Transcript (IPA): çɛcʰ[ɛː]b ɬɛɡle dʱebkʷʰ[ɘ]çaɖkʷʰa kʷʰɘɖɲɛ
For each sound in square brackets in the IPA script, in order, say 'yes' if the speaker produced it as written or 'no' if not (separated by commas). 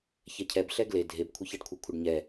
no, yes